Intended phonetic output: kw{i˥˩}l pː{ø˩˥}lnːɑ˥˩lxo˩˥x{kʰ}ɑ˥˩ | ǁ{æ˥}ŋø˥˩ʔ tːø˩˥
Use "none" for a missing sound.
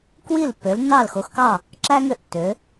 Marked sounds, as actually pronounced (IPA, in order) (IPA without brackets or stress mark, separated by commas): i˥˩, ø˩˥, k, æ˥